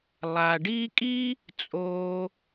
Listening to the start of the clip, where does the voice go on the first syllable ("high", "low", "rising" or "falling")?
low